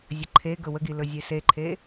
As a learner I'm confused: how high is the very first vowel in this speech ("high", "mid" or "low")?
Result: mid